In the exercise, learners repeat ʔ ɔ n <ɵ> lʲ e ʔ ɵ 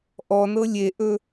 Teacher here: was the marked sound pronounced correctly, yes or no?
no